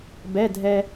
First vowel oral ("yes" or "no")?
yes